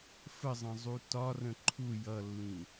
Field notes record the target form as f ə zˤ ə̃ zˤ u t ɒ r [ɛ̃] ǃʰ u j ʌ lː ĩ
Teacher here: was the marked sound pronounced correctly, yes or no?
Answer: no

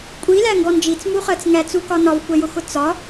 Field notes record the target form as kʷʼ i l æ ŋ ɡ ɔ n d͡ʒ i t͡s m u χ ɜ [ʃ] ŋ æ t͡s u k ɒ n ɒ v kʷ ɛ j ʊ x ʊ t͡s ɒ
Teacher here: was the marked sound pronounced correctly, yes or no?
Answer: no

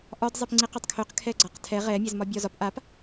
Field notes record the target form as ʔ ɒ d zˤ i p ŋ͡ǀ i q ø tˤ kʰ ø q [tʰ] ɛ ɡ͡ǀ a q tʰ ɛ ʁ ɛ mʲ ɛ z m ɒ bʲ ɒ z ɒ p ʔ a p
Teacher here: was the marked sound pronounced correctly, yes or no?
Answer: no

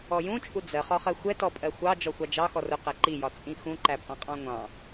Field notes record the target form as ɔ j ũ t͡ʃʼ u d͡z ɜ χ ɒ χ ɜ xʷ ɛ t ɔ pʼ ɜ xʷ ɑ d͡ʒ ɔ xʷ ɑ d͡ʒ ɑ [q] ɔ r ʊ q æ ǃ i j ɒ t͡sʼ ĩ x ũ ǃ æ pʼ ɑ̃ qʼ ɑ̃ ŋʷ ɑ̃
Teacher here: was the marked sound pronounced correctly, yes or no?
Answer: no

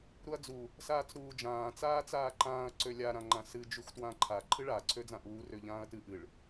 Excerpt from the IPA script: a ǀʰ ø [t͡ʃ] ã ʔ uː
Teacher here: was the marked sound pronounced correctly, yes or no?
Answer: no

